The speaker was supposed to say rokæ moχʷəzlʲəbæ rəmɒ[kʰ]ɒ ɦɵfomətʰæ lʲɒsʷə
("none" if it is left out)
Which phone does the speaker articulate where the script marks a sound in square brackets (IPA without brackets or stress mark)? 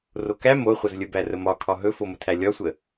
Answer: kʰ